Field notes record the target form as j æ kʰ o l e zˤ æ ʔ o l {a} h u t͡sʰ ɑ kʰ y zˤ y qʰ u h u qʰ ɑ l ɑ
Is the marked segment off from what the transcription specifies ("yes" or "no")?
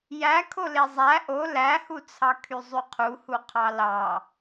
yes